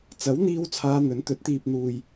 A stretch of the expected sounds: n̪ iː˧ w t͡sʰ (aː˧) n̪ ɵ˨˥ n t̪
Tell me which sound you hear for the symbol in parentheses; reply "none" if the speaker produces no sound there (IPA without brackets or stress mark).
aː˧